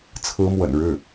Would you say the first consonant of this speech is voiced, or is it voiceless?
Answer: voiceless